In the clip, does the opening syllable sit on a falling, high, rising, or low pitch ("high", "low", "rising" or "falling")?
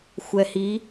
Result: low